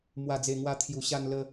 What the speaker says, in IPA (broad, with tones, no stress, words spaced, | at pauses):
mwa˨˩d͡ze˨˩ŋwa˧ t̪ʰju˨˩ɕa˧n lə˧